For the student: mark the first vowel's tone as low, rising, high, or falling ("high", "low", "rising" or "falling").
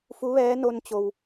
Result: rising